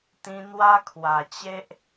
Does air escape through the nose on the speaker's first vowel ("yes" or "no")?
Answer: yes